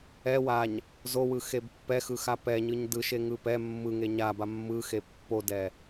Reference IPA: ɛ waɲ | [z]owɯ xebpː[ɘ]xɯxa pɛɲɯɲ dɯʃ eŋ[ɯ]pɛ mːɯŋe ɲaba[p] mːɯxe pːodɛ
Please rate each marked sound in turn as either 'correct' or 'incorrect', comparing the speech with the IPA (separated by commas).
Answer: correct, incorrect, correct, incorrect